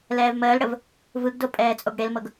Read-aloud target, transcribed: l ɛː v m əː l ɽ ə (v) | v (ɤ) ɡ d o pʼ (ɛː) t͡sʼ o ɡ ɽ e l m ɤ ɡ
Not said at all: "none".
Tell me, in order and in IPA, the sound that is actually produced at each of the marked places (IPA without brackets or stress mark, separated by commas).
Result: v, ɯ, ɛː